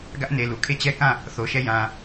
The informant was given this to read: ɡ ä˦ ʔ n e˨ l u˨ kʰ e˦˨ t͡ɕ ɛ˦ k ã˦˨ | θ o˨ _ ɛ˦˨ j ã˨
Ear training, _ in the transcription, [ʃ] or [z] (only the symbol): ʃ